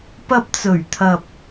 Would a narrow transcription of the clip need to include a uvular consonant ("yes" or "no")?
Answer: no